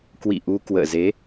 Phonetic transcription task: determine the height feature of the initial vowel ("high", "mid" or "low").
high